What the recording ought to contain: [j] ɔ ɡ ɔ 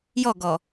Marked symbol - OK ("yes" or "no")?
yes